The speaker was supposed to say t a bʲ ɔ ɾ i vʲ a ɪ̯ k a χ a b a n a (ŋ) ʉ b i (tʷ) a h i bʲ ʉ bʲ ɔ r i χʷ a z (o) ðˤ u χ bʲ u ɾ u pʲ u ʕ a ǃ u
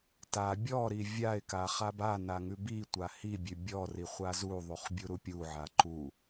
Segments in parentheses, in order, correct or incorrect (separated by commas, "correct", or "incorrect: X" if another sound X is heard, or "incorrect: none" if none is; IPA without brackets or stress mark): correct, correct, incorrect: u